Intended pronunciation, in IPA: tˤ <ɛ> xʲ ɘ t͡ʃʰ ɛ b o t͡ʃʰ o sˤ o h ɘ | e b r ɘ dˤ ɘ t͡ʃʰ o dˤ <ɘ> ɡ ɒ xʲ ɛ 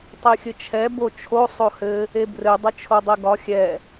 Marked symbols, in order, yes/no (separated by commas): no, no